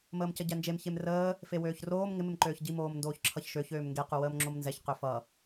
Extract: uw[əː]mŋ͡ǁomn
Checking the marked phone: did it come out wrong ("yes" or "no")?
no